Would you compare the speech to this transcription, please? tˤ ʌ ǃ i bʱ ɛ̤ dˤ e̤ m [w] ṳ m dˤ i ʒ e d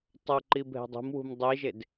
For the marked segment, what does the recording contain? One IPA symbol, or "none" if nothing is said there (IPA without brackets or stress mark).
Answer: w